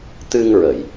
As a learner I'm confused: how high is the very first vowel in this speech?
high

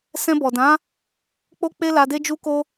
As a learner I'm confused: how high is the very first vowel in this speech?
mid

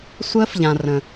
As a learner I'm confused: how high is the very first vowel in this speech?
mid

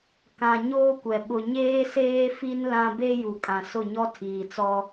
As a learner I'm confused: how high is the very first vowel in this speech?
low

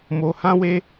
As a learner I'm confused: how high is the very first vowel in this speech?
mid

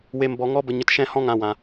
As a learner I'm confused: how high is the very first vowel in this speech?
mid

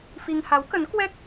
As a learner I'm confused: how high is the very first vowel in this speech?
high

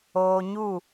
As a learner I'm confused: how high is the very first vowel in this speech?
mid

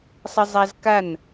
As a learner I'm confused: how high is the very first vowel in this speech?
high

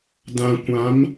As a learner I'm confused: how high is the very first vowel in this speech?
low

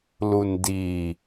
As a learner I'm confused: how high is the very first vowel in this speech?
high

